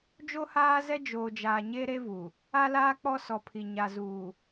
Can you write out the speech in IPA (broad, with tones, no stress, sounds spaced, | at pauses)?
d͡ʒ o˦ h aː˦ z ɛ˦ d͡ʒ oː˨ d͡ʒ aː˨ ɲ e˦ ɾ e˦ v u˨ | a˦ l aː˦ k͡p ɔ˦ s ɔ˨ pʰ i˨ ɲ a˨ z uː˨